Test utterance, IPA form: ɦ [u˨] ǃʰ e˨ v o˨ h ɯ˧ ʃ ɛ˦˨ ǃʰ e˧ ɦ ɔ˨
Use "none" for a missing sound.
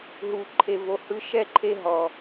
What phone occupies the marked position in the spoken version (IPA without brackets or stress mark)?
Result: u˨